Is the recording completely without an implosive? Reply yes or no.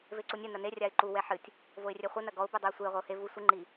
yes